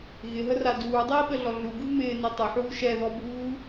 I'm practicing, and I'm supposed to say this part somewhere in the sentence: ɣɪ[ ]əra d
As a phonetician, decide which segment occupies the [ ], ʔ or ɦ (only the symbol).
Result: ɦ